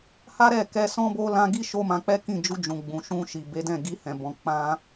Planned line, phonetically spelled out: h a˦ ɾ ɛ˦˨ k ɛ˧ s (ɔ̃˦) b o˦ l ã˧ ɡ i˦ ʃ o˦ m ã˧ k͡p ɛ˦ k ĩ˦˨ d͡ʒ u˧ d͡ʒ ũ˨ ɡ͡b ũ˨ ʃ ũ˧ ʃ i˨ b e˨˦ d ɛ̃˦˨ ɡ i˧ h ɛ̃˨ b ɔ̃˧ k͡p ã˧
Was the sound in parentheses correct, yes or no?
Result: yes